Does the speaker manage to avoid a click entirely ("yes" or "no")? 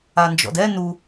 yes